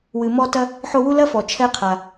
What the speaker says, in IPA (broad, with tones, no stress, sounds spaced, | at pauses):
w ɨ˨ m ɔ˥ t ɐ˥ | ħ o˦ w u˥ l ɐ˥ f ɔ˩ t͡ʃʰ ɛ˦ qʰ a˩